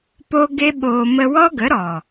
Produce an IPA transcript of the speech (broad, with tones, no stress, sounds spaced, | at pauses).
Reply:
p o˦ ɡ e˦ ɓ oː˧ m ə˧ w ɔ˦ ɡ ə˨˦ ɾ ɔ˨